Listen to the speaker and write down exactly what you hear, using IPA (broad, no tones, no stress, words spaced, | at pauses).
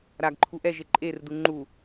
ɾaɡ ǃʰuʔɛʒe ǃʼerdu ŋ͡ǃu